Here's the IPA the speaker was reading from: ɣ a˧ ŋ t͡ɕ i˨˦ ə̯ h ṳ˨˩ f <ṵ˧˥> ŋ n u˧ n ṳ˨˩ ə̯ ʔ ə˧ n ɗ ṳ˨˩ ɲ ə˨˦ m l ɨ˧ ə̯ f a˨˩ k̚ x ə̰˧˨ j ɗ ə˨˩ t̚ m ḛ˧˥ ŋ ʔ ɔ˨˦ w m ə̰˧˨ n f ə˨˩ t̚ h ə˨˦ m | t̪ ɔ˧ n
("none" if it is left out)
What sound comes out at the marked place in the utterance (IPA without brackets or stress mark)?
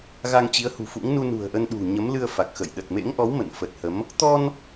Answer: ṵ˧˥